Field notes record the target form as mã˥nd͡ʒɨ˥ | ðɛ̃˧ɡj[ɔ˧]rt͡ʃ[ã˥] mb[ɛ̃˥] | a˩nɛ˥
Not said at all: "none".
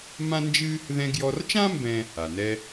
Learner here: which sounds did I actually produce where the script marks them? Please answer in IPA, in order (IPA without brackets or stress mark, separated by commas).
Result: ɔ˧, ã˥, ɛ̃˥